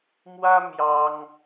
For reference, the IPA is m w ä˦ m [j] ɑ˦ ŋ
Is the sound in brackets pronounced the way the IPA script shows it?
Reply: yes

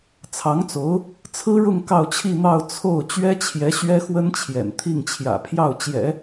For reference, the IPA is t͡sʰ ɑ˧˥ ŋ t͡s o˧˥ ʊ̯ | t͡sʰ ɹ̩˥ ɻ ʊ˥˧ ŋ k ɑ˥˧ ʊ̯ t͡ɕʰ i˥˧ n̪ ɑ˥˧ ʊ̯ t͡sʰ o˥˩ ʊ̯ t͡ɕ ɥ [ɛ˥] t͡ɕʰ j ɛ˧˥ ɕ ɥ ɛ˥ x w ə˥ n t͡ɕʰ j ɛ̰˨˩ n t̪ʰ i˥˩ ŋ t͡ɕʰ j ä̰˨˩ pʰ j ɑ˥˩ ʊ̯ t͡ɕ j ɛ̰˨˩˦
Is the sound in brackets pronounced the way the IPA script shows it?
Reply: yes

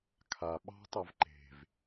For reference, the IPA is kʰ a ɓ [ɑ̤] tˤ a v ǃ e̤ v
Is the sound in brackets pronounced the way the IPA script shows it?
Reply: yes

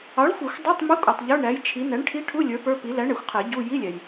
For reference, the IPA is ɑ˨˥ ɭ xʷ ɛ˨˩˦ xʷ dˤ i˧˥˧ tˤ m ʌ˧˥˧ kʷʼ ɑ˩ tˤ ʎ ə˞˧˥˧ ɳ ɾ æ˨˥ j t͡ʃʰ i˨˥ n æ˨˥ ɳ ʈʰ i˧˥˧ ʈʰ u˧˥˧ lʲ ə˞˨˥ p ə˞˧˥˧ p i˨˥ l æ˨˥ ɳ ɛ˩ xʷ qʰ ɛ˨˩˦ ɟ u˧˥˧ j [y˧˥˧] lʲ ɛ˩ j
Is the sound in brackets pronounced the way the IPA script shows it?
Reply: no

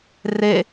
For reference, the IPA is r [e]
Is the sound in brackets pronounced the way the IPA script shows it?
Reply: yes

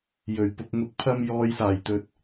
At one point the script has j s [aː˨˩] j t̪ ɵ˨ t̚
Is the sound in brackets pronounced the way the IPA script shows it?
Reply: yes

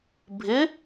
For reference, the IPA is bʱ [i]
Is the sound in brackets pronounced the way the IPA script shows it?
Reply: no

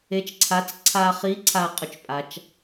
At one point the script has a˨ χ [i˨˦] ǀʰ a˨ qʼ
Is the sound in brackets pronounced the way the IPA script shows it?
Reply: yes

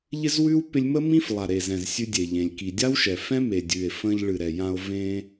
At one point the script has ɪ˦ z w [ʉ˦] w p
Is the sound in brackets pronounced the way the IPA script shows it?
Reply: yes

